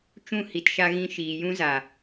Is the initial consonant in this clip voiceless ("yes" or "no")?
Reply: yes